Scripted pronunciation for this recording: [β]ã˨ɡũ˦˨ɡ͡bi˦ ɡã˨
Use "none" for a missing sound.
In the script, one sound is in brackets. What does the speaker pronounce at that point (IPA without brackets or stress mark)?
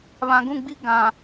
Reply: β